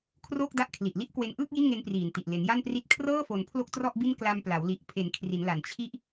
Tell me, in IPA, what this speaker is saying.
kʰ r oː˥˩ k̚ d a˦˥ ʔ kʰ l i˨˩ ʔ l i˥˩ ʔ k w e˧ n ʔ ɯː˥˩ k̚ j i˥˩ n ŋ e˦˥ n p r iː˨˩ n t i˨˩ ʔ l e˩˦ n j a˥˩ n p r i˦˥ t̚ kʰ r ɤː˥˩ f o˩˦ n pʰ l o˥˩ k̚ t r ɔ˥˩ ʔ b i˥˩ n k l a˧ m p l a˩˦ w l i˨˩ ʔ pʰ e˩˦ n kʰ r i˩˦ n l a˨˩ n t͡ɕʰ i˥˩ ʔ

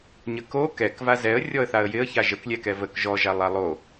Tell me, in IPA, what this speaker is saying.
ɲ ə k o k ɛ k v a z ɛ ə̯ rʲ ɔ ə̯ θ a ə̯ j ɪ ə̯ ç a ʒ ə k lʲ ɛ k ɛ v ə k ʒ ɔ ʒ a lˠ a lˠ o

